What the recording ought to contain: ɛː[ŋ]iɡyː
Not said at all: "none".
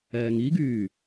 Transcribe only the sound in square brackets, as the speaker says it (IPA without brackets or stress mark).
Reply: ŋ